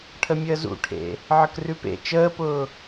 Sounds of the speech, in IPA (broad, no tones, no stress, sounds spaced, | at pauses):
ʈʰ ə mʲ əː z ṵ ʈʰ ḛ | ʕ ə k r ʉ p ḛ t͡ʃ əː p ʊː